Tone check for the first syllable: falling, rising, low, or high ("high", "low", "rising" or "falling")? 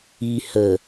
low